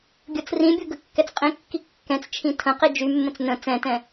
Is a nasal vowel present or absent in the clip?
present